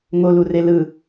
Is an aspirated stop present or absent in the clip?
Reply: absent